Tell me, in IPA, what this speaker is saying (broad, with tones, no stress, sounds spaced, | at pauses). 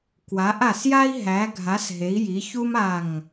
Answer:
k w a˨˦ ʔ a˧˩ s j a˥ i̯ ɦ æ˨˦ ɡʱ a˨˦ s ɦ e˨˦ i̯ j i˨˦ ç u˥ m a˧˩ ŋ